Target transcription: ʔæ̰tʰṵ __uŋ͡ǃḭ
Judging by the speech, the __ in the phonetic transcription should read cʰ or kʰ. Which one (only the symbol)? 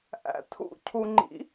cʰ